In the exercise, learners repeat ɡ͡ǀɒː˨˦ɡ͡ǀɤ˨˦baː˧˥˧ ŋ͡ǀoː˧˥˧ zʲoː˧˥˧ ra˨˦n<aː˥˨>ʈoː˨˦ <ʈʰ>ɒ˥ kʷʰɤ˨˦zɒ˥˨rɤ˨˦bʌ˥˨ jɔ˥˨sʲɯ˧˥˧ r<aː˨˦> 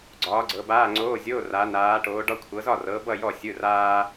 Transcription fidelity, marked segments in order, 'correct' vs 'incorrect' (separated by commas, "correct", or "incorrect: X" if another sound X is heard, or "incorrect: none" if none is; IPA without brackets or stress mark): incorrect: aː˨˦, incorrect: ɖ, incorrect: aː˥